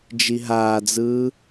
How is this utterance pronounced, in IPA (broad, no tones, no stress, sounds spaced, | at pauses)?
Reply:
d͡ʒ i ɦ aː d͡z ɯː